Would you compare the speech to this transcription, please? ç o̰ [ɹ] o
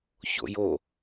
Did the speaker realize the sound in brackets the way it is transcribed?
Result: no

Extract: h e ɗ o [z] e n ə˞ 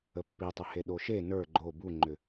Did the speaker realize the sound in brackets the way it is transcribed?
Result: no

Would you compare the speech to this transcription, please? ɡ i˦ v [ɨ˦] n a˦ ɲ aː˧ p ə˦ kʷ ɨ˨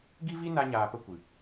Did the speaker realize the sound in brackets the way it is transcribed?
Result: no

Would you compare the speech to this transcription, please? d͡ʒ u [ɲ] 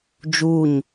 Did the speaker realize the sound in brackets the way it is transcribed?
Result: yes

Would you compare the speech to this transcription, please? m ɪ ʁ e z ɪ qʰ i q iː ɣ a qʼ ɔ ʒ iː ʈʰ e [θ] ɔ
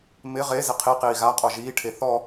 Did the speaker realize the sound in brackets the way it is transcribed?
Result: yes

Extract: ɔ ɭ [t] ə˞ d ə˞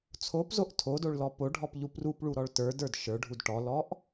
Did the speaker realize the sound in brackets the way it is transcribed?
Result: yes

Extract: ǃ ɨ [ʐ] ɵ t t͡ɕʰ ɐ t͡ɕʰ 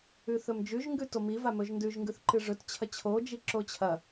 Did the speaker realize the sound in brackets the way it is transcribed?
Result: yes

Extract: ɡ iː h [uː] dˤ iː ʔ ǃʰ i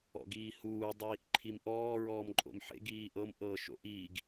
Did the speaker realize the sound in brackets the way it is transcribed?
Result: yes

